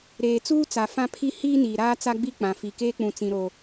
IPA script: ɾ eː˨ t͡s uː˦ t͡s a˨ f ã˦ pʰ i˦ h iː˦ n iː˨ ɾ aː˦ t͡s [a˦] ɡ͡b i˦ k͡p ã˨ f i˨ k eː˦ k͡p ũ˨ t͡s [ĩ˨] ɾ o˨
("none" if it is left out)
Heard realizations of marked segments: a˦, ĩ˨

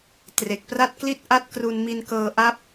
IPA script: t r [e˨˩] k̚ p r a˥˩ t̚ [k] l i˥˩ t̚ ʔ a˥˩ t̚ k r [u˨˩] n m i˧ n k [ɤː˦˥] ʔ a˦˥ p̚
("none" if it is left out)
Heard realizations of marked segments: e˨˩, k, u˧, ɤː˧

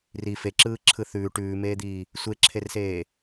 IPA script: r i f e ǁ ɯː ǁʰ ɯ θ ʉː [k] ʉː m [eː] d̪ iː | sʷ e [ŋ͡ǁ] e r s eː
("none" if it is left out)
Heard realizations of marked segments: ʈ, eː, ǁʰ

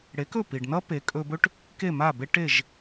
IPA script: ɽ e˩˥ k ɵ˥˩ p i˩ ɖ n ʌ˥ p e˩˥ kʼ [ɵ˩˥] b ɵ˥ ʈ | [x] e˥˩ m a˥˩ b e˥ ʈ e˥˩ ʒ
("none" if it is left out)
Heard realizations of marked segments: ɵ˧, k

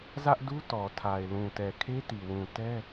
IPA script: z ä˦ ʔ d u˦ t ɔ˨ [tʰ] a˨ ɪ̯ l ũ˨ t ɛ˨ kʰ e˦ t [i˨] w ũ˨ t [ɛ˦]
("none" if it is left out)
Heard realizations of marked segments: tʰ, i˨, ɛ˦

